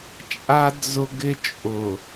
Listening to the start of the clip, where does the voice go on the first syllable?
high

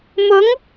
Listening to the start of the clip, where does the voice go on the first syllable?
rising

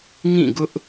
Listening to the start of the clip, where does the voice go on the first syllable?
falling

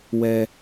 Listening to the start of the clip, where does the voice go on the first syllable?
low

